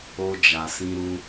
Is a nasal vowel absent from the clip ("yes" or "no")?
no